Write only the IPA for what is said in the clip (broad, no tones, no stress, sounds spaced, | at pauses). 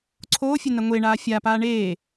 ǀʰ oː fʲ ɘ n ɐ ŋʷ e ɳ aː fʲ a p aː ɳ eː